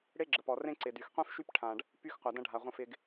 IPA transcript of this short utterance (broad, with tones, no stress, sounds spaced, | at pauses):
ɽ e˦ ɡ͡ǁ ə˨ p ɔ˨ r ẽ˦ ǀ ɪ˨ d y˨ x qʷ ĩ˦ f ʃ y˦ p ʈʰ ã˨ ɖ | p y˦ x qʷ a˨ d ɐ̃˦ ɖʱ a˨ ʁʷ ɐ̃˦ f ɪ˦ ɡ